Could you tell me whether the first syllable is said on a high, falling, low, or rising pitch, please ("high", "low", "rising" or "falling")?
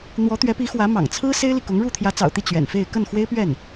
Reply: rising